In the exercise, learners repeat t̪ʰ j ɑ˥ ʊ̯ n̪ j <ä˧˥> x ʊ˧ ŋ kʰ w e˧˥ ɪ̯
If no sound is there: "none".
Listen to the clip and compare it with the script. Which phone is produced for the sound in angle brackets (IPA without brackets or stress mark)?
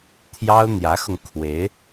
ä˧˥